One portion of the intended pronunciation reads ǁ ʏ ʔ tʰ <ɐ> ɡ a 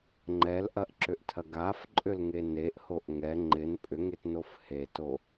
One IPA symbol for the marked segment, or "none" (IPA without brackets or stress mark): ɐ